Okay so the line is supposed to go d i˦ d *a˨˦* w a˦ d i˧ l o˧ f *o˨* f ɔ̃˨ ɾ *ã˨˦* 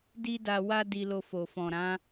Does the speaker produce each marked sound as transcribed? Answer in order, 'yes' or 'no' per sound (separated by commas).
no, yes, yes